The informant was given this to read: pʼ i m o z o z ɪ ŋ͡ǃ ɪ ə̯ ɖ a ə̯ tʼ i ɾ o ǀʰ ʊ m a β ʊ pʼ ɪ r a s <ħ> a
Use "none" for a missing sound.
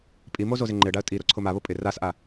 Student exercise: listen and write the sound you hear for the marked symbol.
ʔ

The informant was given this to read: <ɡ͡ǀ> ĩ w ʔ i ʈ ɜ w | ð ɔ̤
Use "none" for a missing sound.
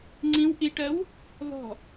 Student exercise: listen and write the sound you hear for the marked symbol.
ŋ͡ǀ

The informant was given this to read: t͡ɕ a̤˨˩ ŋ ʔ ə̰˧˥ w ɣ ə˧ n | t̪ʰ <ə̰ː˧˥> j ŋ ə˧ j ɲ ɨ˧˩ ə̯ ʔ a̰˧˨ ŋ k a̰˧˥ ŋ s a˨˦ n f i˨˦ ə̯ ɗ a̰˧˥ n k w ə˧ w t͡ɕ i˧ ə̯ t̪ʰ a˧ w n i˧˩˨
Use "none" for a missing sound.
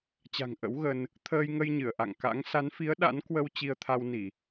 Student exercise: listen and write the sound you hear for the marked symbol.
əː˧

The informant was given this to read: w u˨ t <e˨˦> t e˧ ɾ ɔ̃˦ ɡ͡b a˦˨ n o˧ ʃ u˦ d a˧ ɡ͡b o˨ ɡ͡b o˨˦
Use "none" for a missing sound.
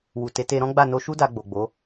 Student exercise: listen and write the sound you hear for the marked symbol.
e˨˦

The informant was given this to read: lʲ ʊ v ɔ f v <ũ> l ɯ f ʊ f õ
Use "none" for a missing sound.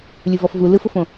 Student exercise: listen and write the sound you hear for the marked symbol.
u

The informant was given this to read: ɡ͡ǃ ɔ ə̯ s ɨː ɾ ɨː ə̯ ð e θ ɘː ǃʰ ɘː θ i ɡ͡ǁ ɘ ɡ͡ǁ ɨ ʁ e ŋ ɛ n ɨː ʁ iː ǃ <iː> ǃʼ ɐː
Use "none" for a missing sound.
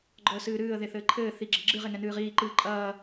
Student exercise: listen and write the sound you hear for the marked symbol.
ɨː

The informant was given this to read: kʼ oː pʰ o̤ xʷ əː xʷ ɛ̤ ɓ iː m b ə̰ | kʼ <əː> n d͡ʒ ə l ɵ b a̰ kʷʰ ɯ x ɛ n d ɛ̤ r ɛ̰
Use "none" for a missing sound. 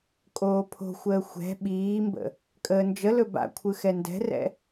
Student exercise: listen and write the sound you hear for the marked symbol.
əː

